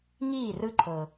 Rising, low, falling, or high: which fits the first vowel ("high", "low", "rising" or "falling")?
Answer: falling